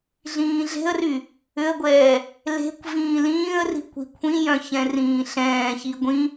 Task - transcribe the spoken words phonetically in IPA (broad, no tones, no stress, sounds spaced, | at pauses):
ɮ ĩː ɮ e̤ ə̯ r y | ʏ ə̯ ɡʷ ɛː | l e̤ kʷ v ĩː l ĩː ə̯ r i̤ kʷ i̤ kʷʰ ĩ j œ̃ ç ɛ̃ r ĩː ɬ ɛ̃ː ç i ɡʷ ĩ